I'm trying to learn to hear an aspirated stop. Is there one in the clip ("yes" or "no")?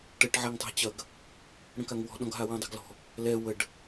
no